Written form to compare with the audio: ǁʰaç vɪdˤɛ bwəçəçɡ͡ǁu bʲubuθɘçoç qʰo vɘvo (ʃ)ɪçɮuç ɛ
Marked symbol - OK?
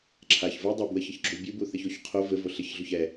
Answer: no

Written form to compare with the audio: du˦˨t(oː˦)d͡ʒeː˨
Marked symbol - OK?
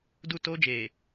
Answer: yes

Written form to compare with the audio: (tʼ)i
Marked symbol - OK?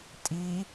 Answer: yes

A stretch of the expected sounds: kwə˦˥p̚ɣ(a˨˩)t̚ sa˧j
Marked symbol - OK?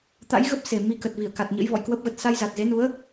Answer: no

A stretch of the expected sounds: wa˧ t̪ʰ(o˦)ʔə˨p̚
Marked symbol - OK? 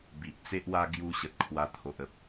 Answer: no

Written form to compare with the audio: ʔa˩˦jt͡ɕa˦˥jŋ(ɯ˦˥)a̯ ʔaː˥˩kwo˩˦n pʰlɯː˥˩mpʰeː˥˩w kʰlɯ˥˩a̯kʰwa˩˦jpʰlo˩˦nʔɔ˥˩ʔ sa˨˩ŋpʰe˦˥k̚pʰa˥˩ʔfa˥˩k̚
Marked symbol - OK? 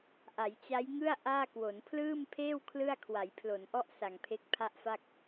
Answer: no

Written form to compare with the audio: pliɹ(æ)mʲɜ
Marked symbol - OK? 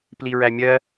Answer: yes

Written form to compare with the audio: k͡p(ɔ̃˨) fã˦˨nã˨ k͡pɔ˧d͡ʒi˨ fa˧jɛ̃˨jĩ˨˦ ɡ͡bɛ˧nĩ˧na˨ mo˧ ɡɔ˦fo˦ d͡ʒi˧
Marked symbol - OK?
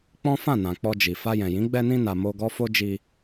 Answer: no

